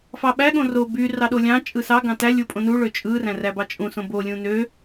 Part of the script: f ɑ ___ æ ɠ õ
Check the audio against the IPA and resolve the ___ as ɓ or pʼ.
ɓ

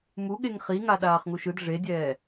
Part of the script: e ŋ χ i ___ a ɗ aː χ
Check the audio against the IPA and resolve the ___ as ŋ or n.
ŋ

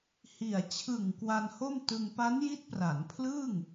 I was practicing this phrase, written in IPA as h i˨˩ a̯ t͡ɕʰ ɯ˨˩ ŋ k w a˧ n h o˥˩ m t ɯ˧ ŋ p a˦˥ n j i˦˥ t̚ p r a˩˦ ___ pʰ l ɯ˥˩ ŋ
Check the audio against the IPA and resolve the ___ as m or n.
n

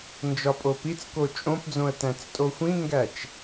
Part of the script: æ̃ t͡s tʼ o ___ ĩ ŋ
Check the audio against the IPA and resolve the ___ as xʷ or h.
xʷ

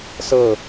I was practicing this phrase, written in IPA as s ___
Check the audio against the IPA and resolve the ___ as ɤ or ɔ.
ɤ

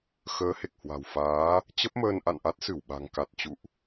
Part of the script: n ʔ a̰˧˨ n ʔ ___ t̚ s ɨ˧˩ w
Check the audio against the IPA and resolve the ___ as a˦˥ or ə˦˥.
a˦˥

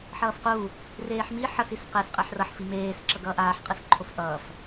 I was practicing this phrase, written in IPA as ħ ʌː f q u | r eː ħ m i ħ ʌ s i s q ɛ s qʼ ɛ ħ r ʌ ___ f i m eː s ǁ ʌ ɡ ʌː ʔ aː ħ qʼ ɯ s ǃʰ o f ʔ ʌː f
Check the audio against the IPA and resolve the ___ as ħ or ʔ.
ħ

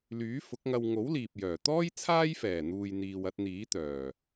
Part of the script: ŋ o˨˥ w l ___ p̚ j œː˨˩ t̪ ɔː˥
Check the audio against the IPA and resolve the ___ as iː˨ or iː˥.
iː˨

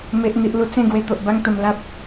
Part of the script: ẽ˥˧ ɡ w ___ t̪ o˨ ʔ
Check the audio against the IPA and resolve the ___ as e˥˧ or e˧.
e˧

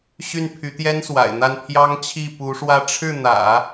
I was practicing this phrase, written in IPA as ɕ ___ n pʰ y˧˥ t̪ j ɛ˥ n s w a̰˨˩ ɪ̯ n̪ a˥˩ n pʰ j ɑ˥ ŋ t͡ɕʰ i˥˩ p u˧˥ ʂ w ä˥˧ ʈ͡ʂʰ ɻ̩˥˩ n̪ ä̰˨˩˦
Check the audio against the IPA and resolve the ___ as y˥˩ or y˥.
y˥˩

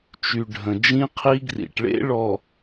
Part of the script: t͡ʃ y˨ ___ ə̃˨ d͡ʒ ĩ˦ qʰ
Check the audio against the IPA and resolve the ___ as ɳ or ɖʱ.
ɖʱ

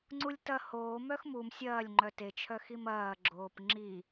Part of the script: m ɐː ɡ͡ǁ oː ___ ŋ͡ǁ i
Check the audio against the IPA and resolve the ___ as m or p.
p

